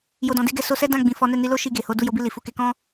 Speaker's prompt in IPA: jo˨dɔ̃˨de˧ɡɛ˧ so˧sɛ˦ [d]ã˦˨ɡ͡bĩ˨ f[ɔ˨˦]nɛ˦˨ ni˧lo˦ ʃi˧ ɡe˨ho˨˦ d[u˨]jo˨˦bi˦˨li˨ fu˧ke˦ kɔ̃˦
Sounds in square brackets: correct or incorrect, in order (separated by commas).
correct, correct, incorrect